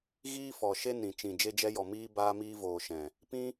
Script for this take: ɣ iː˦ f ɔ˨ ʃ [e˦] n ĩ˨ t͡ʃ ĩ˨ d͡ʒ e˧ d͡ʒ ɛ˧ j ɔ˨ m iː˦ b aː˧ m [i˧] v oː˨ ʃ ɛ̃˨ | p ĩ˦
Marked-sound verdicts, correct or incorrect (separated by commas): correct, incorrect